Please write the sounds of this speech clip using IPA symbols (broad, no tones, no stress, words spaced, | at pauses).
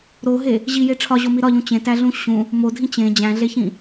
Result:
ɾoɦe | ʑije ʈ͡ʂʰɒʑomi ɾɒʎũ t͡ɕẽtæɮũ ɕũ | modʱĩ t͡ɕẽ d͡ʑæ̃ɮeçĩ